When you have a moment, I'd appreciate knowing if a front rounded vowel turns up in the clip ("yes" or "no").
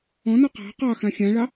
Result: no